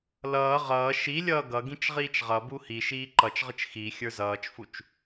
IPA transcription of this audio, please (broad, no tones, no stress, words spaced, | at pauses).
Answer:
lʌː ʁʌː ʃilʲʌː ɡʌ ɡĩt͡ʃʁiːt͡ʃʁʌbu hiʃiː ǃʌt͡ʃʁət͡ʃ xi xʲə˞zʌːt͡ʃfut͡ʃ